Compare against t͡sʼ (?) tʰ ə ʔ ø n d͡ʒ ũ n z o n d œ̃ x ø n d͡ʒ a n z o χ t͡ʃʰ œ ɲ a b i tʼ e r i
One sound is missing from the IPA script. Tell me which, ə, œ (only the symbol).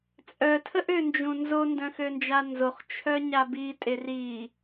œ